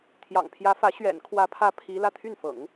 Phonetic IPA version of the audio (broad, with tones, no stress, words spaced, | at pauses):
t̪ʰjɑ̰˨˩ŋpʰjä˧˥fä˧˥ ɕɥɛ̰˨˩nkʰwä˧˥pʰä˧˥ pʰi˧˥ lä˥˧t̪ʰy˥˩nfɤ̰˨˩˦ŋ